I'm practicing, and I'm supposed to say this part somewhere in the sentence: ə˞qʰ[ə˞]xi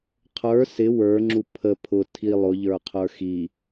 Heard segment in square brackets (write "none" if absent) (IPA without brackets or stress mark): ə˞